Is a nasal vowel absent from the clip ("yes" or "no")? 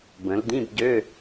no